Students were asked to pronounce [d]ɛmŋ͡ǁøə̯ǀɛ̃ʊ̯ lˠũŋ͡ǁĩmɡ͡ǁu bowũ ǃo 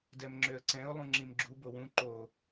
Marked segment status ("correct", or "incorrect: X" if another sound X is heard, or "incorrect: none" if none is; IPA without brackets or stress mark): correct